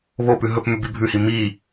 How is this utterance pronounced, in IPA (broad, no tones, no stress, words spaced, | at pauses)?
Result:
βopʉ ɦɵp mʉbibʱʉhi mi